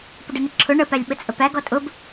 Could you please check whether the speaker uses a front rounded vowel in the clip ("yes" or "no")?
no